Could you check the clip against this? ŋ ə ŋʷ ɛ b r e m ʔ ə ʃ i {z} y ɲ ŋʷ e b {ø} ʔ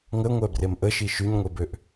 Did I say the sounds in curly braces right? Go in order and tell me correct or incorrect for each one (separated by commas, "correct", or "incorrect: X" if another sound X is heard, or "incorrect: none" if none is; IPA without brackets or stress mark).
incorrect: ʃ, correct